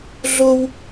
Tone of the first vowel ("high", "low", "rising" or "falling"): high